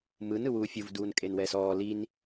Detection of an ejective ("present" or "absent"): present